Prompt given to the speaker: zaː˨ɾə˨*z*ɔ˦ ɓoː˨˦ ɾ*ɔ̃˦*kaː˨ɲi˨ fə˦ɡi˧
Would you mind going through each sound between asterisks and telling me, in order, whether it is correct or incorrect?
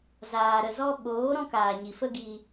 correct, correct

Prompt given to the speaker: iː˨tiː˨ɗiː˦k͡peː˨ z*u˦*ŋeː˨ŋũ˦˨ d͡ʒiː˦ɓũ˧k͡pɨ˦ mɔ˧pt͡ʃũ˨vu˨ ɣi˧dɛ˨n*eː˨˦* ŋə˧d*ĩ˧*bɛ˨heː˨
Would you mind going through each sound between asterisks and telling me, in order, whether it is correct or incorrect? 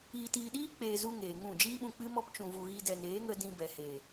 correct, correct, correct

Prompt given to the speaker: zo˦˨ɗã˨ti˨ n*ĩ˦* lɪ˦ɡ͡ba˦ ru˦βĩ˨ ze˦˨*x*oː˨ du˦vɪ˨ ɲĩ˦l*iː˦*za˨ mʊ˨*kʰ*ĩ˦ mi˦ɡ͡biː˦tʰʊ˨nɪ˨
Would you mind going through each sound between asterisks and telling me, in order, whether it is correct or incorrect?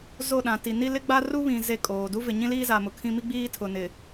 incorrect, incorrect, correct, correct

